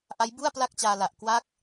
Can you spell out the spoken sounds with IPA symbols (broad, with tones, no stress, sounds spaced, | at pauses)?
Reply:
ʔ a˦˥ j b u˥˩ a̯ p l a˥˩ k̚ t͡ɕ aː˧ l a˨˩ ʔ k w a˥˩ k̚